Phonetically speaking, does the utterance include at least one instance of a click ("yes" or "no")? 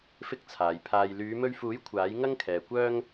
no